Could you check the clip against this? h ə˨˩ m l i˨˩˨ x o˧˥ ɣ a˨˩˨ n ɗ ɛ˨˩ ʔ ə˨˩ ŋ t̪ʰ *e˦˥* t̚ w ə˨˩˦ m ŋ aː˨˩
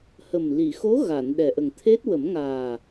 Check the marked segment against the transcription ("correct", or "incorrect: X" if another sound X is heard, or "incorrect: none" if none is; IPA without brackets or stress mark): correct